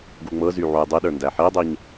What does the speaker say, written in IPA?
ɡ u ŋ͡m ɤ z y ʕ u j dˤ i ɗ ə˞ n d æ ħ i dˤ i ɲ

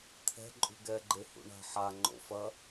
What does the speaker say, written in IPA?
t̪ʰ ɛ̤ ǃʼ ṳ ɡ ɛ ɡ͡ǃ e h ṵ ɳ a̤ ħ a ŋ͡ǃ o̰ f ɐ

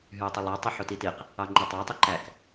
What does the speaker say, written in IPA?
ɦ y o̯ tˤ i lˠ ɑ tˤ o ħ o t i t i q | ɑ ŋ͡ǃ i tˤ ɑ tˤ i ǃ æ k

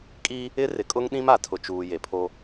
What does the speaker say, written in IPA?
kʼ i˦ | ɪ˦ r ɪ˨ kʼ ʊ˦ ŋ ɗ ĩ˦ m a˨ tʰ ʊ˨ t͡ʃ uː˨ j e˨ pʰ o˦

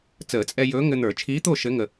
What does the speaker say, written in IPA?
t͡s əː˨˩˦ t͡sʼ ɛ˧ j ɵː˧˥ ŋ ɘ˧ n̪ ə˞˨˩˦ t͡ʃʰ iː˧˥ t̪ o˥˨ ʃ ɘ˧˥ ŋ ə˧

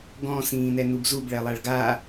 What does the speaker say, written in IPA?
ɡ ɔ̃ s ĩː n ɛ n u b z u b ɭ ɛ lˠ a ɭ ɡ a

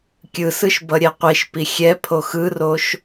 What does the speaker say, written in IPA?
kʲ ɯ s ɯ ʃ b ʌ ɾʲ ɛ qʷ i ʃ p i xʲ ɛ pʰ o x ɯ r o ʃ

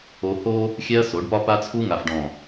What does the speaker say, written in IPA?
o˦ h o˦ | xʲ ɛ˦ ɐ̯ s o˨˦ ɖ p ɒ˦ p a˦ t͡sʰ u˦ ŋ a˨ f ɖ ɔ̃˨

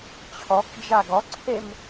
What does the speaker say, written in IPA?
t͡ɕʰ ɔ k d͡ʒ a ɡ ɔ ǀʰ e m

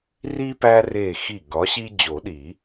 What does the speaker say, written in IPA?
r i˦ p æ˦ r e˧˩ x i˧˩ ɡ ɒ˨˦ ɕ i˦ d͡ʑ o˨˩˦ ɗ i˨˩˦

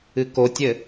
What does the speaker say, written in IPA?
ɨ k o tʲ ɘ

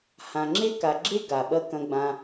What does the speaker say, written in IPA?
h ã˨ ŋ͡ǁ e˥ k a˨ ɡ͡ǁ e˥ ɡ a˩ ɓ ɐ˥ k ɐ̃˦ ɡ͡b ã˦

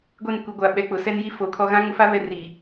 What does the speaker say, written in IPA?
ɡʷ e˦˨ n kʷ i˨ ɡʷ a˨ ɓ ɛ˨ k͡p ʊ˨ s ɛ˦ n j i˦ f o˨ kʰ ɔ˦ ɣ ã˦ ŋ ʊ˦ f a˦ β ɛ˦ r i˨

